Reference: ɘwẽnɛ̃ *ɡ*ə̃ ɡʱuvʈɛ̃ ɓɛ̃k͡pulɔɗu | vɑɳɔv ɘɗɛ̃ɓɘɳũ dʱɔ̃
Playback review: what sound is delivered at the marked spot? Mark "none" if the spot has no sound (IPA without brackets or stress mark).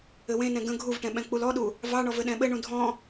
ɡ